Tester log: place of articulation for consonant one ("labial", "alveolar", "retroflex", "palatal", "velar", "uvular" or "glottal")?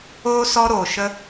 alveolar